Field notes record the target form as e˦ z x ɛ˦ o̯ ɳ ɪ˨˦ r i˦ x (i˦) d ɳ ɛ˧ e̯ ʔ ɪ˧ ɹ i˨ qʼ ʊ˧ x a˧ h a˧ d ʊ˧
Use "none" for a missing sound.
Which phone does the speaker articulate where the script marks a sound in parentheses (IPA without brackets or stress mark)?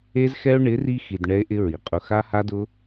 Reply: i˨